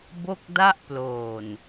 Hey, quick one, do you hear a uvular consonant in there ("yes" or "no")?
no